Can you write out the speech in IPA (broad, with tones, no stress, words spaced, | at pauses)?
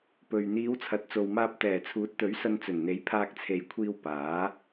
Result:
pɵ˨ɥ n̪iː˨˧wt͡sʰɐ˨˥t̚t͡so˨wmaː˧p̚ t̪ɛː˨˩t͡sʰuː˨˥t̚t̪ɵ˨˥ɥ sɐ˧nt͡sɵ˨˩nn̪e˨˥j pʰaː˧k̚t͡sʰe˨jkʷʰiː˧w paː˨˥